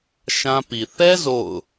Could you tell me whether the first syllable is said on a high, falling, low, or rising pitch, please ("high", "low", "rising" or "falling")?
high